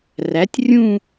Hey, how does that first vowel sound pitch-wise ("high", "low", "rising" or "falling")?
rising